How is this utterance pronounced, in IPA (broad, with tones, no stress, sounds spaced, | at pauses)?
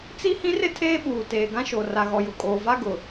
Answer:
t͡s i˦ h ĩ˦ r ɪ˦ tʰ eː˦ ɓ uː˨ t eː˨ ɡ ã˦ ʃ o˨ r a˨ ɣ ɔ˨ j ʊ˨ kʼ oː˨ v a˦ ɡ ʊ˨